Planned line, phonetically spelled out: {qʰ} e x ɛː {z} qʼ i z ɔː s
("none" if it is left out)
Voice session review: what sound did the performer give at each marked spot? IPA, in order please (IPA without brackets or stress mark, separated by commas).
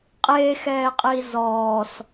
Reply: qʼ, none